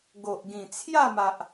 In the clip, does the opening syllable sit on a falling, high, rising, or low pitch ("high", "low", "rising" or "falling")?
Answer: low